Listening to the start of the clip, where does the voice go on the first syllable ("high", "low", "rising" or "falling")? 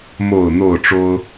low